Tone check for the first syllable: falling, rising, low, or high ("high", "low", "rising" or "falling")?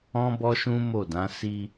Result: high